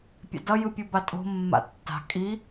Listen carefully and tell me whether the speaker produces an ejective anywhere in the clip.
yes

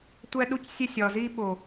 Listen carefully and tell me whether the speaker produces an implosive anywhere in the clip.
yes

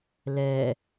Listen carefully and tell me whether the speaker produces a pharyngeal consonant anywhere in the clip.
no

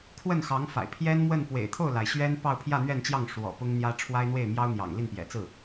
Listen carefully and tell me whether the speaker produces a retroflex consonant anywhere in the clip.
yes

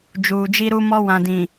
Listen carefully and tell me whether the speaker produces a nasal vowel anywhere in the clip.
yes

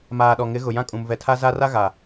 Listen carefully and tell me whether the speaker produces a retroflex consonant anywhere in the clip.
no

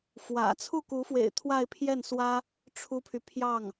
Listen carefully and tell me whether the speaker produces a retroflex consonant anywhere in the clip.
yes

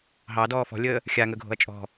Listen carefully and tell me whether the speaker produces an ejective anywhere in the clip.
yes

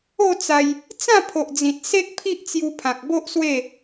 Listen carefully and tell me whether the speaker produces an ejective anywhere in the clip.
no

